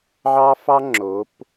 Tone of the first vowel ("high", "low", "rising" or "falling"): high